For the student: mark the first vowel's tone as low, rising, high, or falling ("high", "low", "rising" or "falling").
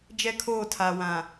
high